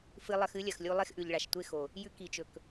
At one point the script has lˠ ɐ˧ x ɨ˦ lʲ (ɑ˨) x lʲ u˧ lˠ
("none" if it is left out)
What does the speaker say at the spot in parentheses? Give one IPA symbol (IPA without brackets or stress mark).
ɐ˨